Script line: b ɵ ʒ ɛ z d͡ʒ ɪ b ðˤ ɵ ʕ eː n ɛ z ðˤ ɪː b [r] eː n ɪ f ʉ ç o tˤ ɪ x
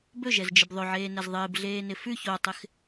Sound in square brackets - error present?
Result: yes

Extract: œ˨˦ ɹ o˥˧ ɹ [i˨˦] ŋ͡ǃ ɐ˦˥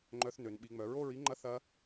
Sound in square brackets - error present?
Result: yes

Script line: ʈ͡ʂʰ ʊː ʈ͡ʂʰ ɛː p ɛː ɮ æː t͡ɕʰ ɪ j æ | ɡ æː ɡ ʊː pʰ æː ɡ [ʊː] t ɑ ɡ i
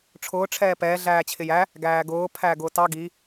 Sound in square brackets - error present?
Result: no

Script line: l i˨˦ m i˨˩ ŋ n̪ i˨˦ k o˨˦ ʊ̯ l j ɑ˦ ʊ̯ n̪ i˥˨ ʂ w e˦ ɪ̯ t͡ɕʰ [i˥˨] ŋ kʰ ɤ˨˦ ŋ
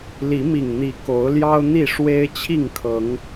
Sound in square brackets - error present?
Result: no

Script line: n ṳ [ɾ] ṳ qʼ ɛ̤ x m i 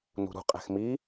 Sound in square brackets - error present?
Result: no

